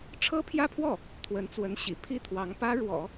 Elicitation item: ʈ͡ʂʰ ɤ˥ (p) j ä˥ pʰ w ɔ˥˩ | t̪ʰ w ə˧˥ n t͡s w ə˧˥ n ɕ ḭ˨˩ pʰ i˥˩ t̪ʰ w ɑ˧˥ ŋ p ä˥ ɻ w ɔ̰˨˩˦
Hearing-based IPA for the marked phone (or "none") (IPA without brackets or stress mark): pʰ